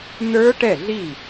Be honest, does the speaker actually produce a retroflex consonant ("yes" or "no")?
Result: yes